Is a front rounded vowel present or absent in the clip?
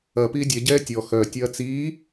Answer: present